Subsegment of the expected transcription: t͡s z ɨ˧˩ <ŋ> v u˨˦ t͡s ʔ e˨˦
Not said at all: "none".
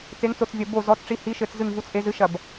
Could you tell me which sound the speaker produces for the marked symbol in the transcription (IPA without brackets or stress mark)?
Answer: ŋ